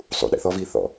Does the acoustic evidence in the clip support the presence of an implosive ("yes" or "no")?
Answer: yes